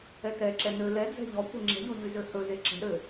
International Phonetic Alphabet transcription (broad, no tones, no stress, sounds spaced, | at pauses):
ɛ t ɛ ǁ ɛ n ø l ɛ d͡z ɛ̤ ʎ ɔ kʷ ɘ ŋ͡ǁ ɛ̤ ʎ o ʎ y z ø h ɵ z e ǁ ɛ̤ ɾ ø